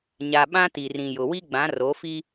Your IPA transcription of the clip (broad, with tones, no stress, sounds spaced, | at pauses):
ɲ a˨ ɓ ã˦ t i˨ r ĩ˨ j ʊ˨ w i˦ ɡ͡b ã˨˦ r o˨˦ f i˦